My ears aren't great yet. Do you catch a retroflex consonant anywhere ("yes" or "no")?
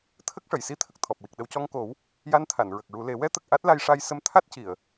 yes